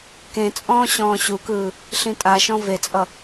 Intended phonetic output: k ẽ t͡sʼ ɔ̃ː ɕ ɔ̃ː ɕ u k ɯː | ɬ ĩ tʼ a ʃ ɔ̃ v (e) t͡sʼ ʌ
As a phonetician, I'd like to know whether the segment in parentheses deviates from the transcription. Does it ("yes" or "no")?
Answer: no